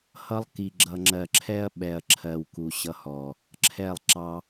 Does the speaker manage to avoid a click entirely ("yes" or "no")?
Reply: no